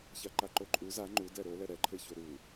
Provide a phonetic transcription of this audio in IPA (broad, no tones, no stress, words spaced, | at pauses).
çaǃaǃoǃʼu za ŋ͡ǃu dɛɾolɛ ɾɛǃʰeço ɾu